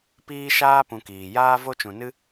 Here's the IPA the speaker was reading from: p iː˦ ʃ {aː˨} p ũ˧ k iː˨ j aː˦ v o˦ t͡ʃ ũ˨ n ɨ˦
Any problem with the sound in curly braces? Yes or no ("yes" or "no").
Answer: yes